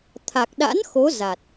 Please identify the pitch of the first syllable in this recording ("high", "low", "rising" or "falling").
low